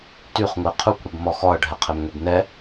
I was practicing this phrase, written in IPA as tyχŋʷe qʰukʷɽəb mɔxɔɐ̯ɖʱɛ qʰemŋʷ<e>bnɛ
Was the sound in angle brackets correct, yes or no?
yes